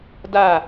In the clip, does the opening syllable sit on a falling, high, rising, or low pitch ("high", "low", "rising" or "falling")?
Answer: falling